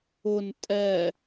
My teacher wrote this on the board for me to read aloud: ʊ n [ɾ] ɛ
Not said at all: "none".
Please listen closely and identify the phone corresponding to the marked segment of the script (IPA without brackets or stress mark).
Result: tʼ